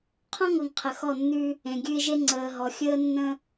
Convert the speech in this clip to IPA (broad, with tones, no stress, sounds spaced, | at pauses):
qʰ ɔ̃˦ ŋ ɤ˨ ŋ qʰ ə˨ x ɔ˦˨ nː ʉ˦ | ẽ˨ ɡʲ ʉ˦ ɪ̯ ʒ e˦ ŋ͡ǀ əː˨ ɦ ɔ˨ xʲ əː˦ nː ə̃˦